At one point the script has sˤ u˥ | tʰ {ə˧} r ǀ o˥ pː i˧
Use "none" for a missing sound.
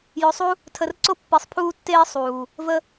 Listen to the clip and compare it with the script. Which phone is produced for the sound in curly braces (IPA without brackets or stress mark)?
ə˧